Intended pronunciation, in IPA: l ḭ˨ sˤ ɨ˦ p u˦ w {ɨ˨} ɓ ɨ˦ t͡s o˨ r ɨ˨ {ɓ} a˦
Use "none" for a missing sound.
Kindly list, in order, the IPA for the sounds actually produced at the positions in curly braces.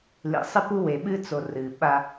e˨, ɓ

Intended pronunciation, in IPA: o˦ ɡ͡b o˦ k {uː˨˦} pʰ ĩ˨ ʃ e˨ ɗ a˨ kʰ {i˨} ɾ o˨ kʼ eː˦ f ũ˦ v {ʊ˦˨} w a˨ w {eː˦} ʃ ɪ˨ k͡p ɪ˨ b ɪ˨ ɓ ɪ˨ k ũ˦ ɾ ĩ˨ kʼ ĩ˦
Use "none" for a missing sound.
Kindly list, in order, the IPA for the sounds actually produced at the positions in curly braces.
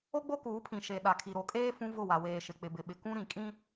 uː˨˦, i˨, ʊ˦˨, eː˨

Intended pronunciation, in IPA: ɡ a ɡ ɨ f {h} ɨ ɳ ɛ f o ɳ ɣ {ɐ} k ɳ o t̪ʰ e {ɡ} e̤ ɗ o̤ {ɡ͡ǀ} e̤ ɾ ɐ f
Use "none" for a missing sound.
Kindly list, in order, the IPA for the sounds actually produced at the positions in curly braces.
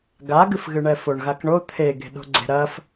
ɣ, a, ɡ, ɡ͡ǀ

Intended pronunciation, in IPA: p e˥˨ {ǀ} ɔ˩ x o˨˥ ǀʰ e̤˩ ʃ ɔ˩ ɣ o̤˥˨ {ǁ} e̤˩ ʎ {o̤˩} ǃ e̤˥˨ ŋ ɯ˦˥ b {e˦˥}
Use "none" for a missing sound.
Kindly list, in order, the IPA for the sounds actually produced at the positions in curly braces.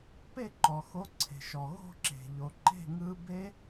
ǃ, ǁ, o˩, e˦˥

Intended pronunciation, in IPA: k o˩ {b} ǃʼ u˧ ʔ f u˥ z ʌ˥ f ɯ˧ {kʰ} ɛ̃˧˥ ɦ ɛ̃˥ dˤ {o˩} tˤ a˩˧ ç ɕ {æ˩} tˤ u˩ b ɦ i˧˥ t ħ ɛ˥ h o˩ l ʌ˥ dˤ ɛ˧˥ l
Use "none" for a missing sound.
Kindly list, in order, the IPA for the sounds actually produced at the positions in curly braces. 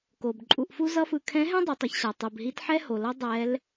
b, kʰ, o˩˧, a˩

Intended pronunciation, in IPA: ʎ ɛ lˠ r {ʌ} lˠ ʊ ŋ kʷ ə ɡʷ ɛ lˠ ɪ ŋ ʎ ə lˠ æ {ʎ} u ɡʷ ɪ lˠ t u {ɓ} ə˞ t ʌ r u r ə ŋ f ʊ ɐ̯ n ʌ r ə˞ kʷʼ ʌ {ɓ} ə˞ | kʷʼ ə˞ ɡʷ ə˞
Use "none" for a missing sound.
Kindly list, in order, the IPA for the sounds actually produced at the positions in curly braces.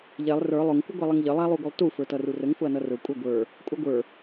ə˞, lˠ, f, ɡʷ

